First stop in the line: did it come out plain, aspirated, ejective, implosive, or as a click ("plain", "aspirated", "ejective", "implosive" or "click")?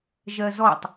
plain